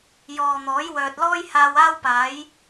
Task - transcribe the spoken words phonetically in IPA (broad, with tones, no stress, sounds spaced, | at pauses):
j ɔː˨ n̪ ɔː˨˥ j w œː˨ t̚ l ɔː˥ j h aː˧ w aː˥ w p aː˨˥ j